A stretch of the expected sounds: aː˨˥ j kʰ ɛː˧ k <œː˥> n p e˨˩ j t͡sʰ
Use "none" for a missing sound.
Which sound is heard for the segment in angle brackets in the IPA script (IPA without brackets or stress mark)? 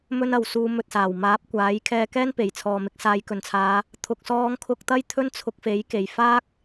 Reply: ɛː˥